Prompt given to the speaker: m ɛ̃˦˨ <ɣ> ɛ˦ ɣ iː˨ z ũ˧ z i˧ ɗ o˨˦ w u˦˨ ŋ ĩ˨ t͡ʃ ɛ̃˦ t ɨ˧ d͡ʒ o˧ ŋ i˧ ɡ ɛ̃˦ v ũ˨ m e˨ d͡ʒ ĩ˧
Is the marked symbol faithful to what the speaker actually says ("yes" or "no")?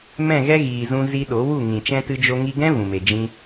yes